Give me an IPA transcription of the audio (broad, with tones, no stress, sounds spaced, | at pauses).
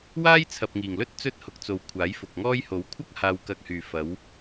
w aː˥ j t͡sʰ ɐ˨ p̚ ŋ iː˨˩ ŋ l ɵ˥ t̚ t͡s ɵ˥ t̚ h ʊ˨˥ k̚ t͡s o˨ w kʷʰ aː˨˥ j f ʊ˨ k̚ ŋ ɔː˥ j h o˨˥ w kʷʰ ɐ˥ k̚ h aː˧ w k ɐ˧ k̚ h yː˨ f ɐ˨˧ w